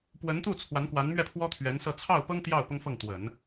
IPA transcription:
pwə˧˥nt̪u˥˩ t͡sʰwa˧˥nkwa˧˥nmɥɛ˥˩pʰwɔ˥ t̪ʰɥɛ˧˥nsɤ˥˧ t͡sʰɑ˥˩ʊ̯pɤ˥ŋ t̪jɑ˥˩ʊ̯ pʊ˥ŋfɤ˥˩ŋt̪wə˨˩˦n

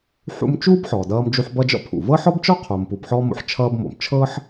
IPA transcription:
ħṵ˦mt͡ʃuː˥b ħɔː˩dʌː˦md͡ʒu˦ħ bʌ˦d͡ʒɔ̰˦pʰṵ˩ vɤ˥ħɔ˥bt͡ʃɔ˥ qʰo˨mpu˨b ħɔː˦mo̰˨ħ t͡ʃʰʌː˦bmo̰˩m t͡ʃʰɤː˥ħ

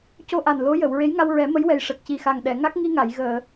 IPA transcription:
co˧ʔa˨˩n lo˧˥jə˨˩˨w ɹe˧˥jŋa˧wɹɛ˨˩˦ mə˧˥jwɛ˨˩j ʂə˨˩k̚ci˨˩xa˨˩ŋ ɗɛ˨˩˨ŋa˦˥k̚ŋi˧ŋa˨˩˨j ɣəː˨˩˨

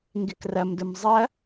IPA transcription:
ŋɡɪkrɐmdʊm zˤɐ

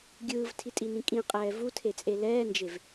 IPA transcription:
ɡʲɯːvtʰitʼinĩ kʼĩqʼɛː vutʰet͡sʼe lɛːnd͡ʒev

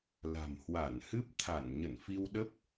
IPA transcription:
la̤˨˩mhwa˧˩nhɨ˦˥p̚ t̪ʰa˧˩n ɲə˧˩nfi˧wɗə˦˥p̚

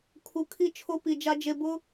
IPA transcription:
kʰu˨kʰi˦ t͡ʃʰo˦pi˨d͡ʒa˦ d͡ʒe˨bʊ˦

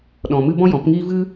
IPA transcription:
ɗɔ̃˧mɨ˦ bɔ̃˦jɔ̃˨˦pŋiː˦ vɨ˦

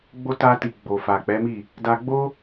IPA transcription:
ɡ͡bo˦ ta˧ti˨ ɡ͡bo˨fa˨k͡pɛ˨˦mi˦˨ | da˧ɡ͡bo˦

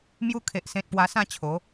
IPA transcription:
mju˧kʰe˨ʔsẽ˨t̚ pwa˧sã˥˧t͡ɕʰo˨˦

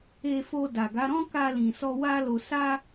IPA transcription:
e˧fo˧ da˨ɡa˨˦ɾɔ̃˦ ka˧lĩ˨sɔ˧ wa˦lo˧ sa˦

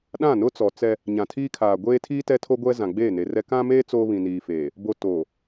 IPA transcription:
ɗã˦˨nʊ˦t͡sɔ˨ t͡sɛ˦ | ɲã˨tʰiː˦kʰaː˨ ɡʷeː˦tʰiː˦ tɛ˦tʰo˦ɡʷɛ˦ zã˨ɡ͡beː˦˨ne˨rɛ˦ kã˦meː˦ t͡soː˦βĩ˨niː˨feː˨ | bo˨ toː˨

